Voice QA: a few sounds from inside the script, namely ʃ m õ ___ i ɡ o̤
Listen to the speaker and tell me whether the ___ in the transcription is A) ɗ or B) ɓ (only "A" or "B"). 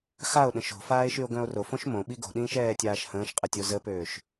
B